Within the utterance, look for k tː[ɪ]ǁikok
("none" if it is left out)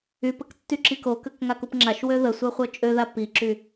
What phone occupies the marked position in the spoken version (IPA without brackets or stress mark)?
y